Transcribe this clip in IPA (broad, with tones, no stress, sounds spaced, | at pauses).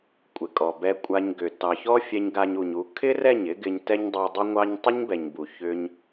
kʷʼ ɪ˨ kʼ ɔ˨ b ɛ˧ kʷʼ a˧ ɲ ɡ ʏ˨ t ɑ˨ ç ɔ˦ fʲ ɛ˧ ɲ ɡ a˧ ɲ u˨ ɲ u˨˦ kʰ ɪ˦ r ɛ˦˨ ɲ ɪ˦ ɡ ɪ˧ ɲ t ɛ˦ ɲ dˤ u˧ dˤ ʏ˦ ŋʷ ɑ˦ ɲ tˤ ʏ˦ ɲ b ɛ˨ ɲ b u˨ ç ʏ˧ ɲ